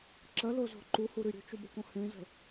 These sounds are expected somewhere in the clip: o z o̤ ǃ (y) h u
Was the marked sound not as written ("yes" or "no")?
yes